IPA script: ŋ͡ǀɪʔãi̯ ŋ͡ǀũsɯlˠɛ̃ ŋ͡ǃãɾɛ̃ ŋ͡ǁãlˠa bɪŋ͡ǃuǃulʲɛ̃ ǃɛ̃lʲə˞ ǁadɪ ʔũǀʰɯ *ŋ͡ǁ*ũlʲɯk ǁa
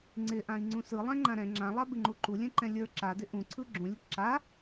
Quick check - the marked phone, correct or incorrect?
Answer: incorrect